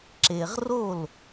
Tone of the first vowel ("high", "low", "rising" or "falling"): low